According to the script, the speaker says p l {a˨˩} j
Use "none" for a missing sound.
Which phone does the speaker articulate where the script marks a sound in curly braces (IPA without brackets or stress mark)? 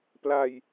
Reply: a˧